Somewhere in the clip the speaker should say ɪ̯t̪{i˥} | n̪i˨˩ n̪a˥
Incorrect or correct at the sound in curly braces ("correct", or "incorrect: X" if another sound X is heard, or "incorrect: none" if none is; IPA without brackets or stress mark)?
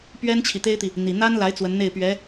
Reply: incorrect: i˨